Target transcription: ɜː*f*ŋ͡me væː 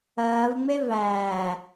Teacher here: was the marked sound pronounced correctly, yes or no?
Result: no